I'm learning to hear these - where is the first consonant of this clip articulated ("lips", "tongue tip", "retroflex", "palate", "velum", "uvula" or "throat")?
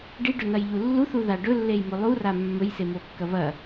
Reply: retroflex